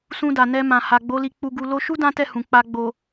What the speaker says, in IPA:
s ũ˧ d a˨ n ɛ˧ m ã˨ h a˨ ɡ͡b o˨˦ l i˧ k͡p u˧ ɡ u˧ l o˧ ʃ u˦ d ã˦ t ɛ˦˨ h ũ˨ k͡p a˧ ɡ͡b o˨

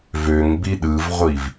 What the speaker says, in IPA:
v ø ŋ b i ɗ ɯ v ʁʷ i v

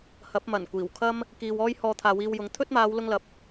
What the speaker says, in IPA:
h ɐ˨˥ p̚ m ɐ˨˩ n kʷ iː˨˩ w kʰ ɐ˥ m | k iː˨ w ɔː˥ j h ɔː˧ t̪ʰ aː˨ w iː˧ w j ʊ˨˥ ŋ t̪ʰ ɵ˥ t̚ m aː˨˧ w l ʊ˥ ŋ l ɐ˨ p̚

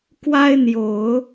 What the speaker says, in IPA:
k w a˥ ɪ̯ n̪ j o˨˩˦ ʊ̯

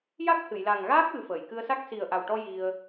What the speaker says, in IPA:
j a˦˥ k̚ h ɨ˨˩˨ j l a˨˩ ŋ ɣ aː˦˥ k̚ w ɨ˨˩ f əː˨˩˨ j k ɨ˧ ə̯ s a˦˥ k̚ s i˨˩ ə̯ ʔ a˨˩ w ʈ ɔ˧ j i˧ ə̯

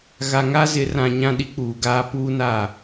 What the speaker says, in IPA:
ɣ a˨ ŋ a˦ z ɪ˨˦ r ã˨ ɲ ã˦ ɗ i˦ k͡p uː˨ ɡ aː˦ p uː˦ n a˦˨

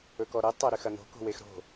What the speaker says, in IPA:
ɵ k ɔ ɾ e tˤ ɛ ɾ ʏ x ɐ n̪ o̤ k o̤ w e x ɾ o̤

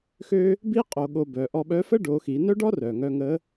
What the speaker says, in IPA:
x ø˥ | b i˥ qʼ o˧ ɠ o˧ b œ˩˧ ʔ ɔ˧ ɓ œ˧˥ f ə˥ ɖ o˩˧ x i˩˧ n œ˥ ɖ ɔ˥ r œ˩ ŋ œ˧ ŋ ə˧˥

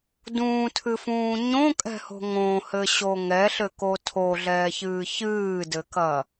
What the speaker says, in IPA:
d ũː tʰ ɨ f ũː ɲ õ kʼ ɛ̤ h o̤ ŋ õ h ɘ ɕ o ŋ ɛ ɬ ɘ k o tʰ o ɮ ɛː ç ɨː ç ɨː d ɘ k ɐ

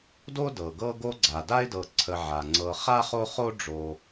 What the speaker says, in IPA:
d o˥ d ɤ˩ ɡ ɤ˦ ɡ o˦ ɡ͡ǀ a˩ d a˥ ɪ̯ d ɤ˨ ǀʰ ə˨ ʕ a˩ ŋ͡ǀ ɤ˨ χ a˥ χ o˥ χ o˥ ɖ͡ʐ o˨

